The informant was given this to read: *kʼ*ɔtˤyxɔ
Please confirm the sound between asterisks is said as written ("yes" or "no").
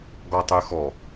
no